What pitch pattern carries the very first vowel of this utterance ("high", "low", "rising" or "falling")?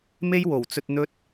high